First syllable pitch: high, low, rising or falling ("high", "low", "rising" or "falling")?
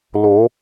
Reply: rising